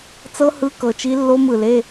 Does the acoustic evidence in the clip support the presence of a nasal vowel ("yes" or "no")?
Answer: no